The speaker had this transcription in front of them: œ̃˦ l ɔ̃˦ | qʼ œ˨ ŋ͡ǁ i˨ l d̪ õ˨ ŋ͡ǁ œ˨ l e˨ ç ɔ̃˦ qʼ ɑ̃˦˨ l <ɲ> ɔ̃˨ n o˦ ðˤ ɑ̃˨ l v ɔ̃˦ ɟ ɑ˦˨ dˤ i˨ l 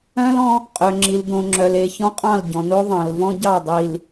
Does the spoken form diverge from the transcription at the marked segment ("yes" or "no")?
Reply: yes